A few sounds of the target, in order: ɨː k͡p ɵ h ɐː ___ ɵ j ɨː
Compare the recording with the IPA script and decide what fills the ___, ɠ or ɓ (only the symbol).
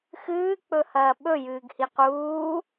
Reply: ɓ